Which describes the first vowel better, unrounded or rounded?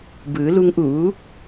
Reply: unrounded